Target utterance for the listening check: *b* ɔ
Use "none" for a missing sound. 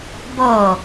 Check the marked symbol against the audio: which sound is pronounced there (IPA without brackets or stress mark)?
b